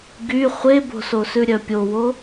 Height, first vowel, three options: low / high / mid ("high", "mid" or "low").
high